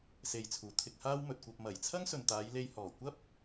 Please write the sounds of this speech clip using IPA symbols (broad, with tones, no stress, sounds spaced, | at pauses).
s e˨ j t͡sʰ uː˨˩ t̪ʰ ɪ˧ k̚ h aː˥ w m ɵ˨ t̚ kʷ ɐ˧ p̚ m ɐ˨˩ j t͡sʰ ɐ˥ ŋ s ɵ˨ n t̪ aː˨˧ j l e˧ j h ɔː˨˩ kʷ ɐ˥ p̚